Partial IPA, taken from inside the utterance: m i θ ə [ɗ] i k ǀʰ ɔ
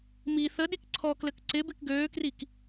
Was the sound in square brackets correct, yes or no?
yes